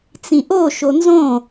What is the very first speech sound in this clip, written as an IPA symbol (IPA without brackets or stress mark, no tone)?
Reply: t͡s